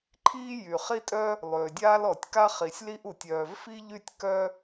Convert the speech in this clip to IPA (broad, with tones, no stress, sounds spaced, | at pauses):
ǃʰ iː˥ j y˩ χ i˥ tʼ œ˥ | lˠ øː˩ dʲ aː˥ l ɔ˩ tʲ k a˥ χ i˩ sʲ l i˥ ʔ u˩ tʲ œː˩ v f i˥ ʎ y˥ tʲ k œ˥